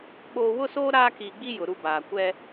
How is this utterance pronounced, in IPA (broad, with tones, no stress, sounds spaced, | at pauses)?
ɓ oː˨ w ʊ˦ s oː˦ ɾ aː˦ k iː˨ ɡ͡b i˦ j ʊ˨ ɾ u˦ b aː˨ kʷ ɛ˦